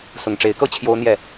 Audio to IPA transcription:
s ʊ˨˩ ŋ ʈ͡ʂ e˨˦ ɪ̯ k ɤ˦ t͡ɕʰ j o˦ ʊ̯ n̪ j ɛ˥˨

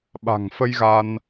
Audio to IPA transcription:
ɓ a̤˨˩ ŋ f ə˧ j ɣ a˧ n

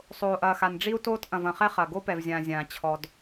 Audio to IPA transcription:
sˤ oː˨ ʔ ɐː˨ x a˨ n ɖ͡ʐ i˦ u̯ t oː˦ t ʔ ɐ̃˨ v ɐ̃˨ χ ɛ˦ χ ɐ˨ ɡ o˦ p ɛ˨ v zʲ ãː˨ zʲ ãː˨ t͡ɕʰ ɔ˨ d

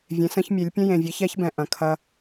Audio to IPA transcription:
vʲ ẽ˩˧ s ə̃˧ ç mʲ e˩˧ lʲ pʲ ə̃˧ j ẽ˩ vʲ e˩˧ ç ɛ˧˥ ç b ɛ̃˩ ʔ ɐ̃˩ kʰ ɐ˧

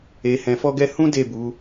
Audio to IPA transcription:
e˨ h ɛ̃˨ f ɔ˧ ɡ ɛ˧ h ũ˦ d e˦˨ b u˨˦

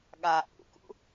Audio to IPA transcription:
ɠ a ʔ ṵ k ṵ

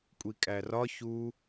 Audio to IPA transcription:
kʷʼ i kʼ æ r ɒ ç u

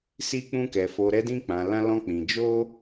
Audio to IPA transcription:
s i˦ k͡p ũ˦ k ɛ˧ f o˧ ɾ ɛ˦ d ĩ˦ k͡p ã˧ l ã˦ l ɔ̃˦ k͡p ĩ˧ d͡ʒ o˦

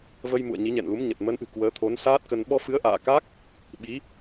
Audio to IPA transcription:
v ə˧ j m ṵ˧˨ ə̯ ɲ i˨˦ ɲ ɛ̰˧˨ n l u˨˦ m ɲ ə˨˩ t̚ m ə˨˦ n ʔ ɨ̤˨˩ k w əː˨˦ t̪ʰ o˨˦ n s aː˦˥ t̚ k ə˧ n ɓ ɔ˧ f ɨ˨˦ ə̯ ʔ a̰ː˧˨ k a˦˥ k̚ | ɓ i˨˦

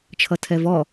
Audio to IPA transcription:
t͡ʃʰ ʌ tʰ ɛ v ɔ

